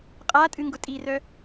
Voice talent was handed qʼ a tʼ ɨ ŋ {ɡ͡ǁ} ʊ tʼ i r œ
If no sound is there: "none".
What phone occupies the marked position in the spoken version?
ɡ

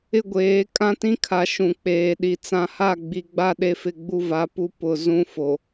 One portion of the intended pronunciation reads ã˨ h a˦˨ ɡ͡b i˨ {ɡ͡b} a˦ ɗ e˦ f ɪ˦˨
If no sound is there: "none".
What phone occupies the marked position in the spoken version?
ɡ͡b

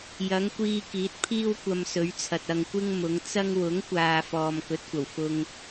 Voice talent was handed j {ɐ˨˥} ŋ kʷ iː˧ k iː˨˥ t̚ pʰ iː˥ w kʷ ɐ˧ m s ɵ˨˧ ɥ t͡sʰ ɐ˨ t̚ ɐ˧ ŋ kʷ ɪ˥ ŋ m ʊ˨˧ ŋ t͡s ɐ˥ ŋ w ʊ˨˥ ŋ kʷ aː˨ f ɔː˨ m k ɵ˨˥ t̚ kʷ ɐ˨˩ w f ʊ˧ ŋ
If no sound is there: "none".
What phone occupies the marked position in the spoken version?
ɐ˨˧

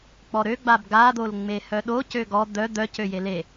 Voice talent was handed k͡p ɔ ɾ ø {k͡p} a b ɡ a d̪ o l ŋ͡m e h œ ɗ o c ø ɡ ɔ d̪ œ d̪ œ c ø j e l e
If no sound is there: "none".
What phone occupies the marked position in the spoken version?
ɡ͡b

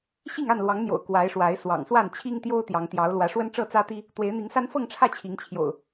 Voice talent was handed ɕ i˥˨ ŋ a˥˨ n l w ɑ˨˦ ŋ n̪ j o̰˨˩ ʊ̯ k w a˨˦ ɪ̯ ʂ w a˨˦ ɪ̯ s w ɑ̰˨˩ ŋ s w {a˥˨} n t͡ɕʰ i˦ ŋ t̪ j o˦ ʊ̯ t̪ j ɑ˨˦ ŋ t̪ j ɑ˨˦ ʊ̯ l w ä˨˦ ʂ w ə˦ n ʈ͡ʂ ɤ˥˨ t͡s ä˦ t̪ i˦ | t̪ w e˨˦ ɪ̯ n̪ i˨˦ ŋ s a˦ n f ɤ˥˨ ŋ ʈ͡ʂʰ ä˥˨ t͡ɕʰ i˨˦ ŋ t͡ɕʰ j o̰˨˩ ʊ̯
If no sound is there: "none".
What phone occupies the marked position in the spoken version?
a˥˨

